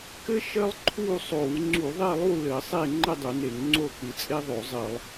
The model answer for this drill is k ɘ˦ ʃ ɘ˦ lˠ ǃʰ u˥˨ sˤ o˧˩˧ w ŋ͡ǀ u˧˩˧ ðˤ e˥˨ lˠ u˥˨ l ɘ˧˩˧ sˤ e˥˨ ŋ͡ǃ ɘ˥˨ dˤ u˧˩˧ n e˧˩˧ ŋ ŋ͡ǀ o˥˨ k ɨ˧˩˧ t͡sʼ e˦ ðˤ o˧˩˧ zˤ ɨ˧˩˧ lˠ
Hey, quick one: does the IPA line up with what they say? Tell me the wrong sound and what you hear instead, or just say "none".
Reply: none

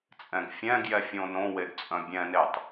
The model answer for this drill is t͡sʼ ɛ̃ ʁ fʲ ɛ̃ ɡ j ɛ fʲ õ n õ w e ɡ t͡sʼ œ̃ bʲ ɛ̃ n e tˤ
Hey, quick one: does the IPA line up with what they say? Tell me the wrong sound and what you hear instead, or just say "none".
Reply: ʁ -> ɡ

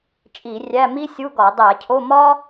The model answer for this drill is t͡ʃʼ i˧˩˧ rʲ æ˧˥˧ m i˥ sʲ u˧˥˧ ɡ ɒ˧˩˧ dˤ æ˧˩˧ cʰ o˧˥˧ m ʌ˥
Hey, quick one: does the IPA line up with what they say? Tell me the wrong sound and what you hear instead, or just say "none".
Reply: ʌ˥ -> ɒ˥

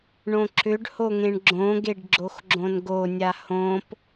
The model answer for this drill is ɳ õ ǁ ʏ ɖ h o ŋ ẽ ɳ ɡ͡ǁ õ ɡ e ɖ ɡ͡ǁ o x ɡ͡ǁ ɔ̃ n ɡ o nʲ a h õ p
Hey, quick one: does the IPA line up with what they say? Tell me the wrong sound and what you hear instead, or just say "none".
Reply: ɔ̃ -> õ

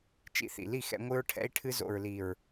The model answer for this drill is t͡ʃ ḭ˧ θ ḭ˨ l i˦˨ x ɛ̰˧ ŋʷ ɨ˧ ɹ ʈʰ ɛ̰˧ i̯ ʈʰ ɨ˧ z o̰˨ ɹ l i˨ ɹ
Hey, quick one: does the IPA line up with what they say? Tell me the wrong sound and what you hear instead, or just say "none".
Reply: none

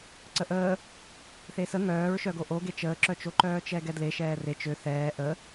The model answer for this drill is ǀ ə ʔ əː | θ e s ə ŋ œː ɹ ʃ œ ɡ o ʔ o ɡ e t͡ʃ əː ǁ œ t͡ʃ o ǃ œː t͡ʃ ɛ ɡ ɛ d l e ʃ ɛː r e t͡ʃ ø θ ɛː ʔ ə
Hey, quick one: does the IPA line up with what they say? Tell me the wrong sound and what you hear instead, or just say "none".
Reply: none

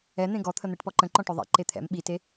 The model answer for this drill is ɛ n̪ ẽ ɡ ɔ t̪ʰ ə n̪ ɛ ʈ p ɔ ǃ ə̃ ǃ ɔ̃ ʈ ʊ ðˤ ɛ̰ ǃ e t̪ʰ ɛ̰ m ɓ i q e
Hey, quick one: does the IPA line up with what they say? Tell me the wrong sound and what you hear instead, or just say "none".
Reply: q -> t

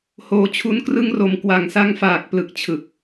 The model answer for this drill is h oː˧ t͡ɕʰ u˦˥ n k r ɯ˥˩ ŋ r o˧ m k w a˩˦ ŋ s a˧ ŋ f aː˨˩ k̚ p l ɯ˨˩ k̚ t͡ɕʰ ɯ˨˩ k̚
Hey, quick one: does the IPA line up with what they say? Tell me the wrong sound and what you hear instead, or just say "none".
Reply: none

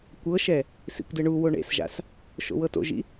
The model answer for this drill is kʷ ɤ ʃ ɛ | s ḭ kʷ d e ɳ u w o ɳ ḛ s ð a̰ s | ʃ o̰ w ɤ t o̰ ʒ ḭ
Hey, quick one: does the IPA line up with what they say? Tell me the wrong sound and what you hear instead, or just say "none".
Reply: ð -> ʒ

